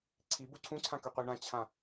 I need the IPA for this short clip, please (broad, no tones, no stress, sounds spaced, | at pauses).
ǀʰ i b u ǀʰ ũ ǀʰ ã k ø qʷ e ɳ ã t͡ɕʰ ã